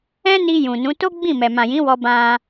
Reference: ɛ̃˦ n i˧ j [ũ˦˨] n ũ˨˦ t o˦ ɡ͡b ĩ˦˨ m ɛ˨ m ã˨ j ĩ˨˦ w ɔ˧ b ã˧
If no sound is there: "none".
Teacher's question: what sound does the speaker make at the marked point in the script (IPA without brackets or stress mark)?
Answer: ũ˨